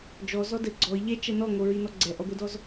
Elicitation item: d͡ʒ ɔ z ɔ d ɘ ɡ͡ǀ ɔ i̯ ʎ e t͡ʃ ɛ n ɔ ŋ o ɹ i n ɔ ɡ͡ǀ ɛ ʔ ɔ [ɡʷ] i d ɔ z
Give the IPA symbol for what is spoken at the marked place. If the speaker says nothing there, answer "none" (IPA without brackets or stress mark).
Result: ɡʷ